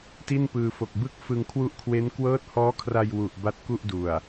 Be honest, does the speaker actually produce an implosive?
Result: no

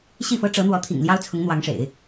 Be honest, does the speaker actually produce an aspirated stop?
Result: yes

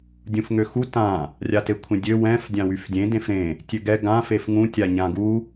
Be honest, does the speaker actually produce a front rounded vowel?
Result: yes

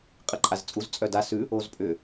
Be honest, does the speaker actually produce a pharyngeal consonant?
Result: no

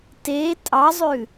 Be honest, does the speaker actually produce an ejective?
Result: yes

